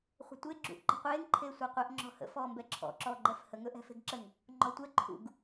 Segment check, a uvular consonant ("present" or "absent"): present